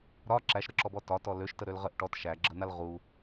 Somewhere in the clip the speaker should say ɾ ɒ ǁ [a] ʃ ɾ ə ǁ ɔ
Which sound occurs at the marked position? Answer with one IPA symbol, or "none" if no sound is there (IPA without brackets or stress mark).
æ